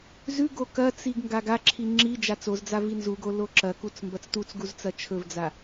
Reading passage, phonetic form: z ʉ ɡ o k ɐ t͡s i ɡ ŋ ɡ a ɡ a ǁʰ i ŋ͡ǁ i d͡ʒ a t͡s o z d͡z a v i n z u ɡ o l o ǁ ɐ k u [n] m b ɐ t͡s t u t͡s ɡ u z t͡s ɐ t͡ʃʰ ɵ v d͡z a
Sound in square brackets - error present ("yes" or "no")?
yes